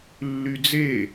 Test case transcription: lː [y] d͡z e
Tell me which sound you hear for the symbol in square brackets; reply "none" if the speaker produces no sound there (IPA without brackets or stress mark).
y